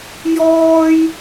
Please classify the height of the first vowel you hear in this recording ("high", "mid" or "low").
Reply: mid